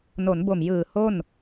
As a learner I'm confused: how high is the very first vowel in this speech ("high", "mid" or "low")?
mid